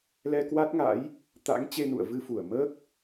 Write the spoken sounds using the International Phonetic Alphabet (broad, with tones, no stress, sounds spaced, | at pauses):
l ɛ˧ k w a˦˥ t̚ ŋ a̰˧˥ j | t̪ a̰˧˥ ŋ t͡ɕ e˧ n ṵ˧˨ ə̯ v ɨ˧ f u˧˩ ə̯ m əː˦˥ k̚